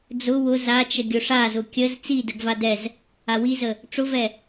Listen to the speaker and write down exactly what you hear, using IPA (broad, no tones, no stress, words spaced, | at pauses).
d͡zʊ wʊ zat͡ʃə ɡʲʊʂazʊ kʲəz t͡si dəɡva dɛz | awizə | ʈ͡ʂʊvɛ